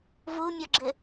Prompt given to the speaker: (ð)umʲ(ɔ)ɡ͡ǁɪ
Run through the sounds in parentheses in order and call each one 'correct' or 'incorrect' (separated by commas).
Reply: incorrect, correct